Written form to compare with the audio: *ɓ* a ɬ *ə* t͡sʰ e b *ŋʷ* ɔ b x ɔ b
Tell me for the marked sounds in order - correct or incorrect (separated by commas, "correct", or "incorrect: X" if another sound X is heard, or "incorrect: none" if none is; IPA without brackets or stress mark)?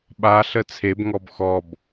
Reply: correct, correct, incorrect: ŋ